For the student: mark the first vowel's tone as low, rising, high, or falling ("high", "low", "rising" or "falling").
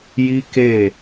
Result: high